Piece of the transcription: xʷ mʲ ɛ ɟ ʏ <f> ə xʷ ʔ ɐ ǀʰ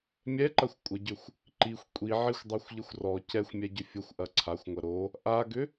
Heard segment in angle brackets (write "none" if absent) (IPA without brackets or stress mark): fʲ